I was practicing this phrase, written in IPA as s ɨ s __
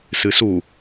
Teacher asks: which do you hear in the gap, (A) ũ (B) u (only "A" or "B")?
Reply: B